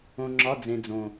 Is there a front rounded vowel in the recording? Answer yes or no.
no